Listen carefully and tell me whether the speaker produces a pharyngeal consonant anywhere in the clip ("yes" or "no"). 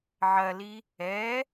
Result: yes